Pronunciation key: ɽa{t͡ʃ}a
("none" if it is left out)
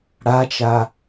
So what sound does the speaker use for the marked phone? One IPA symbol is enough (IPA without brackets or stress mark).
t͡ʃ